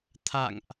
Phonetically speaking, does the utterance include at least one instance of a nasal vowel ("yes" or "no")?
no